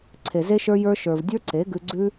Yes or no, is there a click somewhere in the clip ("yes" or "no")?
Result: yes